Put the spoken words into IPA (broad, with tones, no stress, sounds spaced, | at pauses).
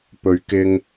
p ɵ˨˧ ɥ k ɪ˧ ŋ